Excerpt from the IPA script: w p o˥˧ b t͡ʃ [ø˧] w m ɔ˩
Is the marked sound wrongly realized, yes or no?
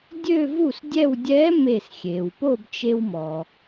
yes